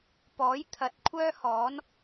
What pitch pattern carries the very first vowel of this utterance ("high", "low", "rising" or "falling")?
rising